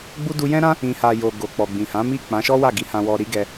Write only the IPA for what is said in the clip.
ɡ͡b u˦ d u˧ j ɛ̃˦ ɾ ã˦ | ĩ˨ h a˨ j o˨ ɡ o˨ k͡p ɔ˨ ɡ͡b ĩ˨ h ã˨˦ m i˦˨ k͡p ã˨˦ ʃ ɔ˦ w a˦˨ ɡ i˨˦ h ã˧ w ɔ˧ ɾ i˦ ɡ ɛ˧

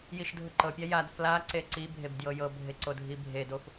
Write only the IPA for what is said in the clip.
j i ʃ dʱ ɤ ǃ ɤ pʲ a j a d f l a ǀ e ǀ i bʱ e b d j ɤ j ɤ bʱ e ǀ o dʱ i bʱ e d o f

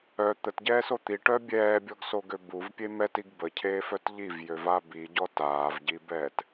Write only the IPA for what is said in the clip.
œ t̪ ə t ɟ ɛː s o t̪ i ʈ œ bʲ ɛː bʲ ɔ ɡ s o ɡ ø b u v pʲ e m ɛ t i ɡ b ə cʰ eː f œ t ʎ i v j ø v a b i ɟ ɔ t aː v ɟ i b ɛː t

